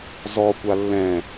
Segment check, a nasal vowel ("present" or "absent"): present